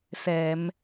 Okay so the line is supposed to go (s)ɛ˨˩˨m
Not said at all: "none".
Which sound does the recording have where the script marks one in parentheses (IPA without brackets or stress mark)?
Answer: s